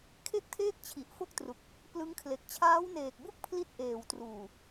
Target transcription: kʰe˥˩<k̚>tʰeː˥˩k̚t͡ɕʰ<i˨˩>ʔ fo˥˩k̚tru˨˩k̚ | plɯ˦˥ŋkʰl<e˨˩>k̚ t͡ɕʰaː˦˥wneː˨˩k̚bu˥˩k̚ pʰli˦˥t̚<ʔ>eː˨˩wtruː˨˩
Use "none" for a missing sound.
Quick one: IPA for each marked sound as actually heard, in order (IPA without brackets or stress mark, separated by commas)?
k̚, i˨˩, e˨˩, ʔ